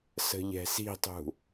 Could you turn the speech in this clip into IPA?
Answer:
s ə̤ ʎ ɛ̤ s i̤ tˤ ṳ

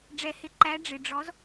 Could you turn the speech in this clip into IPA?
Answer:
ɖ͡ʐ ɛ˨˩˦ h ɪ˨˥ ǃ æ˨˥ ɖ͡ʐ ɪ˨ ɖ͡ʐ ɔ˨˥ z

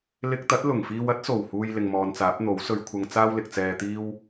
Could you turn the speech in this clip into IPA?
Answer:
l ɪ˧ k̚ t̪ ɐ˨˥ t̚ l ʊ˨˩ ŋ f iː˧ w ɐ˨˥ t̚ s o˨˩ w h uː˨ j l ɪ˨ ŋ m ɔː˨ n t͡s aː˨˥ p̚ n̪ o˨˥ w s ɵ˧ ɥ kʷʰ ɐ˧ ŋ t͡s aː˥ w l ɪ˨ k̚ t͡s ɛː˧ t̪ iː˥ w

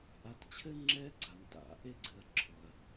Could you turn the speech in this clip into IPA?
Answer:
ʔ a˨ t t͡ɕʰ ɘ˦ ŋ͡ǁ ɛ˦ ɡ͡ǀ a˩ n t a̰˩ ʔ e˦ ɡ͡ǀ ɨ˨ ɐ̯ ǁʰ ɔ˩ ɐ̯

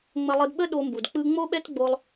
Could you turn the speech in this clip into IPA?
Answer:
ŋ͡m ə˧ lˠ ɯ˧ d ɓ ə˦ ɗ o˧ m b u˨ d k͡p ɯ˦ ŋ͡m o˦ ɓ ɛ˦ t ɡ͡b o˧ lˠ

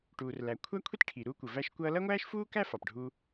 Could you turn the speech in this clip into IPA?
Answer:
ʈ uː˩ r l æ˩ kʷʰ æ˥ kʷʰ i˥ t ʈʰ i˩ ɾ uː˥ kʷ ə˩ v æ˥ ʃ kʷ ʌː˥ l ʌ˥ ŋʷ æː˥ ʃ f uː˥ k æ˥ f ɑ˩ p ɖʱ u˥

